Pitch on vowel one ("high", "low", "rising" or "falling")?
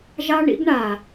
high